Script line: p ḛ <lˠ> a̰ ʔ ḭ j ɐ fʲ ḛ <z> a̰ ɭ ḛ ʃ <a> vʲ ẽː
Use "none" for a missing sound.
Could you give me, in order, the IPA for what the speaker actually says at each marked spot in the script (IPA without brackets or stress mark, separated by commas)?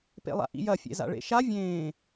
lˠ, z, a